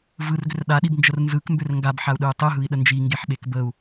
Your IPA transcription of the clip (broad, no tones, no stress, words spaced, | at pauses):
vɯrɡʏr ɗaɗibnd͡ʒər nzɯkmbʏr ŋɡabħau̯ɗɯu̯ tˤɯɦɯi̯ɗə nd͡ʒiŋɡeħɓek bəu̯